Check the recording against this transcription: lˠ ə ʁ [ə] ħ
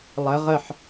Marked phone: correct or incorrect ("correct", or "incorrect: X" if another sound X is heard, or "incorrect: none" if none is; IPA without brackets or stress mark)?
correct